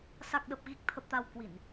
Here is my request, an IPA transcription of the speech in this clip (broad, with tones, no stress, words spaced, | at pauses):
sa˨˩k̚ɗə˨˩p̚ ɣi˨˩k̚t̪ʰə˨˩p̚t̪a˨˩w kwi˧˩˨n